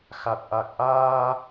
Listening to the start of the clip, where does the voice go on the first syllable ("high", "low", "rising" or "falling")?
low